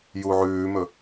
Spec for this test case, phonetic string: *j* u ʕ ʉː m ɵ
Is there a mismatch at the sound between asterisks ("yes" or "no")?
no